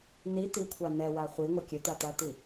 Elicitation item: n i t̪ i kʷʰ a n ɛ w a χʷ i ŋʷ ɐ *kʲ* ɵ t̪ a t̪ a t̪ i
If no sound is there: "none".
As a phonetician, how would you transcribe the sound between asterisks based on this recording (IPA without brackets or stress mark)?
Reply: kʲ